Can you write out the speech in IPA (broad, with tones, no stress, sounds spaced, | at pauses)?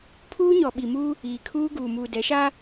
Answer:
pʰ uː˦ ɲ ɔ˨ ɓ i˨ m uː˦ | iː˨ kʰ uː˦ ɡ uː˨ m uː˨ d ɛ˨˦ ʃ aː˦